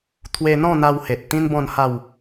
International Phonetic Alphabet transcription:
t̪ʰwe˧n̪ɔ̃˥˧n̪a˧whe˨t̚ t̪ĩ˦nbɔ̃˥˧n ha˥˧w

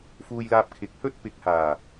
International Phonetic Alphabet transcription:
fuː˧jlaː˧p̚ kʰɪ˨˥k̚hɵ˥t̚ pɪ˨˥k̚haː˨˩

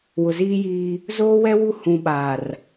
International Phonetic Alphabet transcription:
wʊ˨ziː˦jiː˦ | zoː˦wɛ˦ wu˦ hũ˨ɓaː˨r

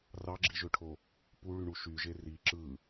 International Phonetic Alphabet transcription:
rɑɡ͡ǁiʒøʈʰo | puɭyɳu ʃyʒe ri ǁɯ

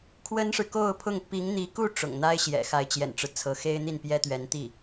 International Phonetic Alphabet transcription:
kʰwə˥nʂɻ̩˨ko˥˧ʊ̯pʰʊ˥˩ŋ pi˧˥ŋn̪i˧˥ku˥˩ ʈ͡ʂʊ̰˨˩ŋn̪a˥ɪ̯ ɕjɛ̰˨˩ xa˧˥ɪ̯t͡ɕjɛ̰˨˩nʈ͡ʂɻ̩˦ t͡sʰɤ˧˥xe˥ɪ̯n̪i˥˩n pjɛ˥t̪ɥɛ˧˥nt̪i˥˩

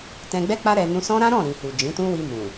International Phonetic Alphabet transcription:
tɛ̃˧ɡ͡bɛ˦k͡pa˦ ɾɛ˧ nũ˧sɔ̃˦ɾã˦ ɾɔ̃˦˨ɾĩ˨hu˨ d͡ʒĩ˨˦tũ˦wi˧ mũ˨

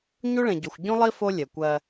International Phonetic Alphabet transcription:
ɲu˦ɭẽ˨ɟo˨xʷ ɟũ˦lˠi˦ fo˦ lʲɛ˨kʷɜ˦

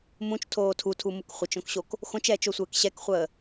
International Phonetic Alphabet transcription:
mũt͡ʃtʰoː tʰutʰumuk χʷət͡ʃõkɕok | xõt͡ʃɛːt͡ʃosʷɘːk ɕɛkχʷəː

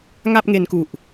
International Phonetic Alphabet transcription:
ŋa˥˩p̚ŋe˧nku˨˩ʔ

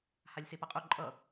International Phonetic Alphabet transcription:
halʲsepʌqʼu ǃʼʌ

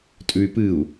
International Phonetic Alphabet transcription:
tʼʉy̯pɨu̯

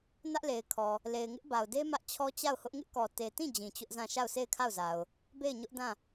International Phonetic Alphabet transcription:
nä˦ʔle˨ɪ̯kʰɔ˨ | le˨ɪ̯ŋɪ˦ʔba˨ʊ̯de˦ mä˦ʔt͡ɕʰɔ˦t͡ɕa˦˨ʊ̯hʊ˦ʔ ŋɪ˦ʔkɔ˨te˨tĩ˦˨ d͡ʑĩ˨t͡ɕʊ˦ʔzã˦˨ ʃa˦˨ʊ̯se˦˨ɪ̯kʰa˦˨ʊ̯za˨ʊ̯ | be˦˨ɪ̯ɲʊ˦ʔdã˦˨

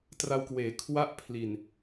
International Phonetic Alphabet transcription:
tra˧wkweː˩˦ kʰwa˦˥ʔ pʰli˨˩n

